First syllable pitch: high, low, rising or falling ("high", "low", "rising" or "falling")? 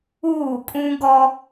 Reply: falling